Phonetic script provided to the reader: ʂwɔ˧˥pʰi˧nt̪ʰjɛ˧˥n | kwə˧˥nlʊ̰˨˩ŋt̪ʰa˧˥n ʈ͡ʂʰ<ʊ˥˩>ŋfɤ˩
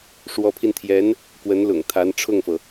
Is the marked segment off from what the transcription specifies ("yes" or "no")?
no